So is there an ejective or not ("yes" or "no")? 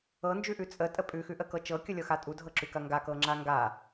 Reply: yes